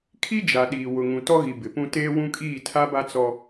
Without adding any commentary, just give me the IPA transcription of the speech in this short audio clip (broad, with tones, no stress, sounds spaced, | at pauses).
kʰ i˦ d͡ʒ a˨ ɗ iː˨ w ʊ˨ ŋ ũ˨ t ɔ˦ ɣ i˨ b ɪ˨ p ũ˦ t eː˦ w ũ˦ kʼ iː˦˨ tʰ a˦ b a˦ t͡s ɔ˦